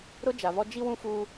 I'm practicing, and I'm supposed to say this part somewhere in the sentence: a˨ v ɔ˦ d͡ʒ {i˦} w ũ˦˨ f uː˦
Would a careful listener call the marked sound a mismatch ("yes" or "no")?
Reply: no